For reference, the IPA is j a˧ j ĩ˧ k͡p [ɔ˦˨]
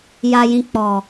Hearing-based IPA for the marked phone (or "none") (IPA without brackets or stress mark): ɔ˨